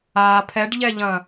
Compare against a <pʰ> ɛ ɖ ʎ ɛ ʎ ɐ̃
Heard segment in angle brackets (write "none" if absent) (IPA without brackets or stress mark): pʰ